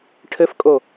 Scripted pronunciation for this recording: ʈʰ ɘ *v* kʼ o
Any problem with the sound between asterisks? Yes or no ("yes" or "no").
yes